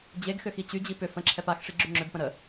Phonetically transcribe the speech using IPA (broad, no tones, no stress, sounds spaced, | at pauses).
d͡ʑ e ɡ x ʏ x i t͡ɕ y d͡ʑ i p ʏ f ə̃ ǁʰ ɛ p a x ʂ i ɡ͡ǁ y ŋ͡ǁ ʏ b p ə̃ ɾ ə